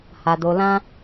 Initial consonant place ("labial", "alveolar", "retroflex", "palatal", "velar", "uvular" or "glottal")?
glottal